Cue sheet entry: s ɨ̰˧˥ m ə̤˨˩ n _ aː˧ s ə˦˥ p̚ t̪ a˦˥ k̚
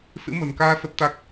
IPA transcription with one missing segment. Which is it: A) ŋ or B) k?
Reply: B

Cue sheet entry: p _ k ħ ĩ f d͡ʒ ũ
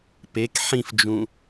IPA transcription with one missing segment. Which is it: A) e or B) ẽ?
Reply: A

